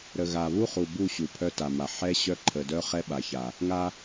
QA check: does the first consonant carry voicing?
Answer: yes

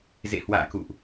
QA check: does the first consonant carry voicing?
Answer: yes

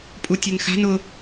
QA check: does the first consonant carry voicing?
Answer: no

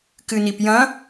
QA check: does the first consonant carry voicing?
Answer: no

